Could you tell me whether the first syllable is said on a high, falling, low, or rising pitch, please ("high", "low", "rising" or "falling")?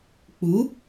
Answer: rising